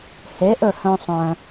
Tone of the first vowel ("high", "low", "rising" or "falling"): rising